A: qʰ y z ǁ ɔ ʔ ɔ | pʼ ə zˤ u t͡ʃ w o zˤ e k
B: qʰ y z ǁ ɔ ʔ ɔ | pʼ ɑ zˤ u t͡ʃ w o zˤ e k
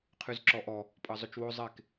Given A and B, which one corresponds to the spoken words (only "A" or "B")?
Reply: B